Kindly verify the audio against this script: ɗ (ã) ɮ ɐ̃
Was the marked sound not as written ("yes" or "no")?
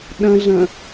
yes